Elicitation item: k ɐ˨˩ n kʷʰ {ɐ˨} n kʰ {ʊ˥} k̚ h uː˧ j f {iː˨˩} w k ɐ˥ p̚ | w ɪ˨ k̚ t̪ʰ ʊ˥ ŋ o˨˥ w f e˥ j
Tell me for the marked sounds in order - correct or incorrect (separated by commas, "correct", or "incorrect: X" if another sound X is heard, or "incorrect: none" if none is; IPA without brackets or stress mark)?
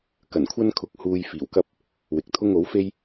incorrect: ɐ˥, incorrect: ʊ˧, correct